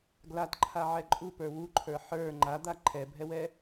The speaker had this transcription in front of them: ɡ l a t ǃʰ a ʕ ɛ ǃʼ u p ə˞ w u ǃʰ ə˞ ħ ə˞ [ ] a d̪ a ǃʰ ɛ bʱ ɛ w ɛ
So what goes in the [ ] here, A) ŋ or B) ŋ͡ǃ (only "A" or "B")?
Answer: B